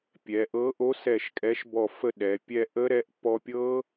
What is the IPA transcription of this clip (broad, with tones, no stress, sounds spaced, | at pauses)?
pʲ ɛ˩˧ ʔ ɤ˨˥ ʔ o˨˥ s ɛ˧˩ ʃ kʼ ɛ˨˥ ʃ b ɔ˧˩ f ə˥˨ ɗ ɛ˩˧ pʲ ɛ˥˨ ʔ ə˦˥ ɾ ɛ˨˥ ʔ p ɔ˧ pʲ ɤ˦˥